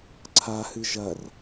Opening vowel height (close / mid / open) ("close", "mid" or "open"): open